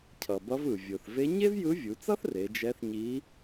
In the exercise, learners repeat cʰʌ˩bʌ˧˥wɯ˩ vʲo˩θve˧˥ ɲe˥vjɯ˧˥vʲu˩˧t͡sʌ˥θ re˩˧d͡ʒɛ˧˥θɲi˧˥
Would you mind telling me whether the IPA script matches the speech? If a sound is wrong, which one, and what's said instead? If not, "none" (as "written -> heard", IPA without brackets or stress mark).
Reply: w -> v